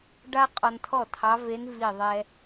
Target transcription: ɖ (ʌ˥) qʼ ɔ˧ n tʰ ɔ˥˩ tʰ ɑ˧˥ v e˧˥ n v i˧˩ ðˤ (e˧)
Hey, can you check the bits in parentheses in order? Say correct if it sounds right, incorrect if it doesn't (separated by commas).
incorrect, incorrect